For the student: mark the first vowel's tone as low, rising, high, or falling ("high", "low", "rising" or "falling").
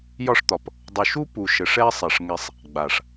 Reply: falling